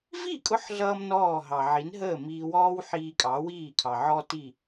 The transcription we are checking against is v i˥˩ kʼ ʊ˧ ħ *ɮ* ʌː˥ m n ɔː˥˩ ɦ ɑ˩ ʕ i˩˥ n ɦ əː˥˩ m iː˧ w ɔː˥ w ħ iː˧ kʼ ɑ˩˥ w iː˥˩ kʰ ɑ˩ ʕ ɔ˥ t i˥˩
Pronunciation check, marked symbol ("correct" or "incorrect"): correct